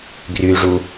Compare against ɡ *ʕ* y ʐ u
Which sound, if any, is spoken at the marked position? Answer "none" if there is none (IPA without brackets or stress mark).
r